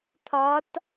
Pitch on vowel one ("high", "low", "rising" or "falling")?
rising